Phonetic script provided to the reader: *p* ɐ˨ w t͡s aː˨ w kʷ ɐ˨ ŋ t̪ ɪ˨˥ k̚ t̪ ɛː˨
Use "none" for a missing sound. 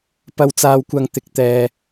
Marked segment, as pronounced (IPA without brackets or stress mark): p